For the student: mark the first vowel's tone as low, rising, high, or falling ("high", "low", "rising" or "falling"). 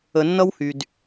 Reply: low